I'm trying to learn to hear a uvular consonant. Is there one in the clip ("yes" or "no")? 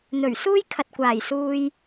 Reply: no